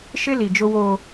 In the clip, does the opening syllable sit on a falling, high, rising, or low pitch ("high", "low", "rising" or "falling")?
high